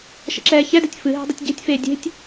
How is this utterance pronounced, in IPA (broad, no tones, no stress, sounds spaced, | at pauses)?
ʃ ə̰ ǁ ɛː ç ɛ d ɨ tʲ f ɨ ɦ ɛ̤ dˤ ə tʲ ɟ e̤ tʲ f eː dʲ e̤ tʲ